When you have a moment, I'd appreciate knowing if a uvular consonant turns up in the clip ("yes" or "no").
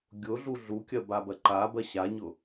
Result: no